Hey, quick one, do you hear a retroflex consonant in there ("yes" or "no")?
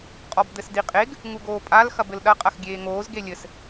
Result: no